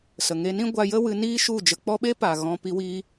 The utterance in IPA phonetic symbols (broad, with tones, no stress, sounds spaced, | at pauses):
s ə˨ ŋ e˧ n ĩ˦ ɡʷ a˧ j ə˦ w ɨ˧ n iː˦ ʃ u˦˨ d͡ʒ ə˧ k͡p ɔ˦ ɓ e˦ p aː˨ ɣ ɔ̃˧ p i˧ w iː˧